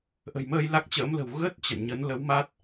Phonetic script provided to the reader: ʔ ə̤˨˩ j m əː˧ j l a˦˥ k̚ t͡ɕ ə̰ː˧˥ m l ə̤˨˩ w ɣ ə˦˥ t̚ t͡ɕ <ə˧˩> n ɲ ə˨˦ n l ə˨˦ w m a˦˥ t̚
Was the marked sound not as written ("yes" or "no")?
yes